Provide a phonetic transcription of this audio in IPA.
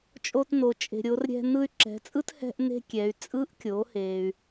t͡ʃʼ o˧ t n o˩ t͡ʃʼ e̤˩ ɾʲ o˩˧ r ɾʲ ɛ̤˧ n ɯ˧ y̯ ǁ ɛ̤˩˧ t͡sʼ ɯ˥ t h ɛ̤˥ ʔ n e̤˥ kʲ ɛ˩˧ y̯ t͡sʼ ɯ˧˥ ʔ kʲ o˩˧ h e˧ y̯

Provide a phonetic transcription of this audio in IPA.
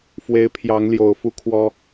f w e˨˦ ɪ̯ pʰ j ɑ˨˦ ŋ l j o˨˩ ʊ̯ f u˦ kʰ w ɔ˦

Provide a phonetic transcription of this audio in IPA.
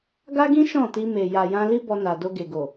ɡ a˦ ɡ ĩ˦ ʃ ɔ̃˦˨ t i˧ m e˨ j a˨ j ã˧ l i˦ b ɔ˧ n a˨ d o˧ ɡ e˨ ɡ o˨

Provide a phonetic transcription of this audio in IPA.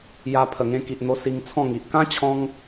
j a˧ pʰ ə˨˩ ŋ ẽ˧ k i˨ ʔ n̪ o˧ s i˧ ŋ t͡sʰ ɔ̃˥˧ ŋ i˨ ʔ k ã˦ t͡ɕʰ ɔ̃˦ ŋ

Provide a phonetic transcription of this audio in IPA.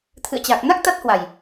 t̪ʰ ɨ̰˧˨ ə̯ t͡ɕ a˨˩ k̚ n a˦˥ k̚ t̪ a˦˥ t̚ h w a˨˩ j

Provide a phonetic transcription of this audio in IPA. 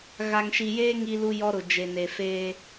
ɣ a˨ ŋ ʃ i˨ j eː˦ ŋ i˦ l u˦ j ɔ˦ ɾ ʊ˨ d͡ʒ e˨ n e˨ f eː˦

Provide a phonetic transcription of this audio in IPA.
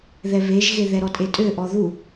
ð ɛ β e ʒ ɣ e ð ɛ ɾ ɔ tʼ e tʼ ø ʔ ɔ ð u

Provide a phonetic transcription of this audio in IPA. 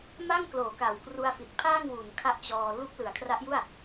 m a˥˩ ŋ k l oː˩˦ k a˩˦ w k r u˧ a̯ f i˨˩ t̚ pʰ aː˥˩ ŋ w u˩˦ n kʰ a˦˥ ʔ t͡ɕ ɔː˧ l u˦˥ k̚ l ɯ˩˦ a̯ kʰ r a˦˥ ʔ j u˥˩ a̯

